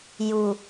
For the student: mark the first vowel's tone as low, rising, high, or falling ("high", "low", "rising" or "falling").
low